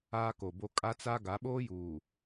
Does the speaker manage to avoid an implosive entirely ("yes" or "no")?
no